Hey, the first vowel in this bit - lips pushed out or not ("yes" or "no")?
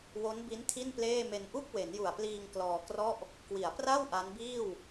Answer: yes